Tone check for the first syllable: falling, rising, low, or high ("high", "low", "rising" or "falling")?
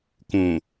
low